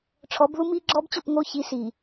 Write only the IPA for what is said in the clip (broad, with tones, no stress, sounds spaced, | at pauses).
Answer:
ʈ͡ʂʰ ɔ˨˦ b ð u˦ m iː˦ ɡ͡ǁ ɔː˦ b t͡ɕ o˦˨ p ŋ oː˦ ç i˨˦ s iː˨